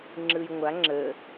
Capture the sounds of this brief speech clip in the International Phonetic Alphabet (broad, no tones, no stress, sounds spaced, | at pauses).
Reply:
ŋ͡ǁ ɯ j ŋʷ a ŋ͡ǁ ə